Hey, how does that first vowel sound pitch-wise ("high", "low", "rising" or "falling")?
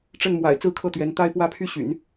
falling